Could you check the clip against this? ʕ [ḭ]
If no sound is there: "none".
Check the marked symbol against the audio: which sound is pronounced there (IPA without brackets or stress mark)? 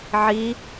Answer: i